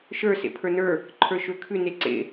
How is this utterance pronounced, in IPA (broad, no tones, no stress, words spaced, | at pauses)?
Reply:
ʃə˞ sḛpʰə˞nə˞ | ǃʰə˞ʃøkʰʉ neǀḛ